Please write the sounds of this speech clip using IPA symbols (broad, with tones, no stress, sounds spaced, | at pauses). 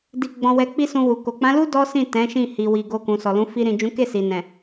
d i˧ ɡ͡b ɔ̃˧ w ɛ˧ k͡p i˦ s ũ˧ w u˨ k o˨ k͡p ã˨˦ l u˦ d ɔ˦ s ĩ˦˨ t ɛ̃˨˦ ʃ ĩ˦˨ h i˨ w i˨ ɡ o˧ k ũ˨ s ɔ˨ l ũ˨˦ f i˧ ɾ ĩ˨ d͡ʒ ũ˨˦ k e˦˨ s i˨ n ɛ̃˨